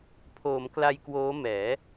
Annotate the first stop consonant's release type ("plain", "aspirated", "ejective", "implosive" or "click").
aspirated